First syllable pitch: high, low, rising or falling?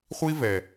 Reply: high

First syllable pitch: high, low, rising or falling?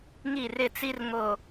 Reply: falling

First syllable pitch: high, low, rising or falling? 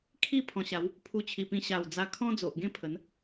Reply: falling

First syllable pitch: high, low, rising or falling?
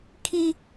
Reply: high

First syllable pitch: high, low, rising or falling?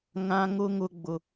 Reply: high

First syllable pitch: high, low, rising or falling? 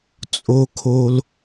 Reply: high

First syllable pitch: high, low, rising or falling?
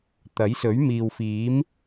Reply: rising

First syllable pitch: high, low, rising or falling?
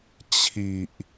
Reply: low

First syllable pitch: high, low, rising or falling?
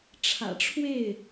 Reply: low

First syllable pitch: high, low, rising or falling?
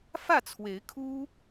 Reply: falling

